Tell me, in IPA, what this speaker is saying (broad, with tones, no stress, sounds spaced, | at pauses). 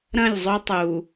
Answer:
ɾ ɐ̃˦˨ lʲ zˤ ɵ˦ tˤ u˨